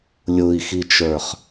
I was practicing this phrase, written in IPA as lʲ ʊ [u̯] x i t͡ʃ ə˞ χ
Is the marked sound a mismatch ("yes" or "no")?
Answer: yes